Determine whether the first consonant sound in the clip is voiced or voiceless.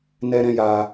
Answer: voiced